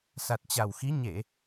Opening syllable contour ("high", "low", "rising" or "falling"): low